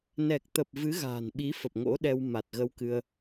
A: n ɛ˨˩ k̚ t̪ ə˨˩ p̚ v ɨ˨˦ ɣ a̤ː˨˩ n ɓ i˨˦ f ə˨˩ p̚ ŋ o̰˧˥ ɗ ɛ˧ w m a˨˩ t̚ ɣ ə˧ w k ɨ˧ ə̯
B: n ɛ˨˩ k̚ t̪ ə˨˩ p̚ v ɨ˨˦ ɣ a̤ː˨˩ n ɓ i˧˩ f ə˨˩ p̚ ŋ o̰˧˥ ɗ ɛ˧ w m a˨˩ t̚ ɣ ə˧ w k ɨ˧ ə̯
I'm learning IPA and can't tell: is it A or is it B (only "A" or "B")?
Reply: A